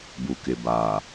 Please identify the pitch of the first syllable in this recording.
low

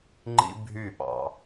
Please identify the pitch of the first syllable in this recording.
high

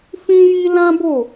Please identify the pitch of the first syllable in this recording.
high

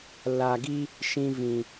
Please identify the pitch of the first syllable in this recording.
low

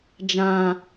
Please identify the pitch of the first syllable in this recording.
low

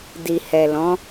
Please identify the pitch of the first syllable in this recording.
low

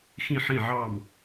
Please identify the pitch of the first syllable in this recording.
falling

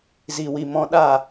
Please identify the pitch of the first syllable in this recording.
low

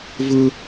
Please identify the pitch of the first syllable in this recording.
high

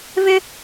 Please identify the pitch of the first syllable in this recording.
high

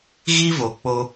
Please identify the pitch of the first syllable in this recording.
high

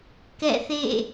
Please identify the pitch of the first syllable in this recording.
falling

